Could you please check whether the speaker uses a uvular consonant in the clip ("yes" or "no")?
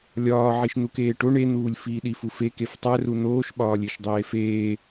no